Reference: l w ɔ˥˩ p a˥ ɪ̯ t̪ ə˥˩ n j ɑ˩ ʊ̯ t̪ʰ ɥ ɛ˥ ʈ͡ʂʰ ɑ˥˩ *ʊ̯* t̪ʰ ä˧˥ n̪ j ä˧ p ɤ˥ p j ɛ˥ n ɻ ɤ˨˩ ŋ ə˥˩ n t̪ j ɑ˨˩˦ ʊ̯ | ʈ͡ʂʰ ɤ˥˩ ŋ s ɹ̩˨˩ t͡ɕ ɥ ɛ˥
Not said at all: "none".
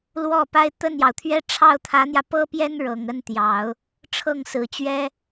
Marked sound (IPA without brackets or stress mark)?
ʊ̯